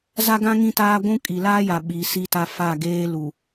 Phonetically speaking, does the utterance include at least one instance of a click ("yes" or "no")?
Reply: no